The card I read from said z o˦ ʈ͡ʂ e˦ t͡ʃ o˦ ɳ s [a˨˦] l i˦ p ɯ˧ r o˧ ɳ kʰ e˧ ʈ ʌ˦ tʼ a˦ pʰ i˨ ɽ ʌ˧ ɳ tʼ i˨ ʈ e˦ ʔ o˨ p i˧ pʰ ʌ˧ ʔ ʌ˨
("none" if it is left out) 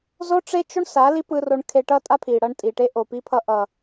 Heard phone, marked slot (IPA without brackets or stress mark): a˨˦